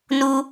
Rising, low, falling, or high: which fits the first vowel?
high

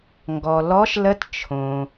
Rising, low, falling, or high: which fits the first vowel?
low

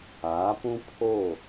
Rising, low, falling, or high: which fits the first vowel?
rising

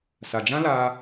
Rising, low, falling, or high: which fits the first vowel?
low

